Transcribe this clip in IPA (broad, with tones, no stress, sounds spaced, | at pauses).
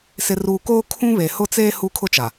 s ɪ˨ r uː˨ k oː˦ kʰ ũ˦ β e˨ h ʊ˦ t͡s eː˦ h u˦ kʰ ʊ˦ t͡ʃ a˨